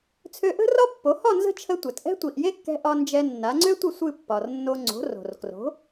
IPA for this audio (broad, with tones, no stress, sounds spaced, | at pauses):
t͡sʰ ø˧ ʔ ə̤˥ r ɒ˥ pː o˩˥ h ɒ˥˩ n z ə̤˥˩ t͡ʃʰ ə˧ tʷ ɛ˩ t ʔ ɛ̤˥ tʷ i˩ ʔ j e˥ kː ɛ̤˧ ʔ ɒ˧ n d͡ʒ ɛ˧ nː a˩˥ ŋ͡ǀ ø˥ tʷ ɨ˥˩ sʷ ɨ˥˩ pː ɒ˩ r nː o˧ ŋ͡ǀ o̤˩˥ r o̤˩ r k r o̤˩˥